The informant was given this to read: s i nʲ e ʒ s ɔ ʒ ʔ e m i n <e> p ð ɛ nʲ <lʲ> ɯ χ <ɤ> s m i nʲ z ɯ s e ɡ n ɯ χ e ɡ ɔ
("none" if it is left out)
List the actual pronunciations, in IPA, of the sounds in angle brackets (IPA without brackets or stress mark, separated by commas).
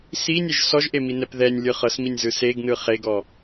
ɛ, lʲ, ɤ